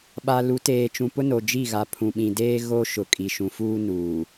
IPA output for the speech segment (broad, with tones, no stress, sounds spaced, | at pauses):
ɓ a˨ l u˨˦ t eː˨ t͡ʃ ũ˨ p ʊ˦ n o˨ d͡ʒ i˦˨ ɣ a˨ pʰ ũ˨ ɓ ĩ˨ d eː˦ ɣ o˦ ʃ ʊ˨ kʼ i˨ ʃ ũ˨ f uː˦ n uː˨